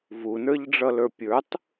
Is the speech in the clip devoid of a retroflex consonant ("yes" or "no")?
no